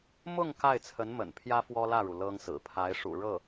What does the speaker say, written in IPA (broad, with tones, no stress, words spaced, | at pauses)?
mʊ˥˧ŋ ka˥˩ɪ̯t͡sʰə˧˥nmə̰˨˩n pʰjä˥fwɔ˥lä˥˩ɻu˩ lɤ˥ŋsɹ̩˨˩ pʰa˧˥ɪ̯ʂṵ˨˩ɻɤ˥˩